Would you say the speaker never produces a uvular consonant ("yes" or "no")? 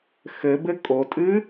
yes